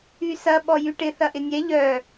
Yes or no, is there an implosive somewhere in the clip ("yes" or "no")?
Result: yes